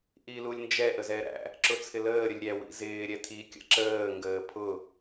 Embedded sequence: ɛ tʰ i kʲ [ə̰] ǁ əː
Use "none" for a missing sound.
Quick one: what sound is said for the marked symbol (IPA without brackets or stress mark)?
ə̰